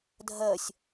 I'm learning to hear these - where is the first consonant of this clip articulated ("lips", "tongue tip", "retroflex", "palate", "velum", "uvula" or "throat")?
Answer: tongue tip